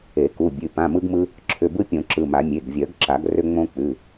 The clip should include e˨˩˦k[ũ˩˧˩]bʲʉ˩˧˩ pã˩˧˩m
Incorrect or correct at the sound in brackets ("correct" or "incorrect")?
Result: incorrect